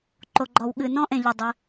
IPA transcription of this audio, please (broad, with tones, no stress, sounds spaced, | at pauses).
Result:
ǃ o˨ ɡ͡ǃ ɔ˨ w ɠ ɨ˨ n ɔ̃˦ ʔ ẽ˨ ʎ ɨ˨ dˤ ɨ˧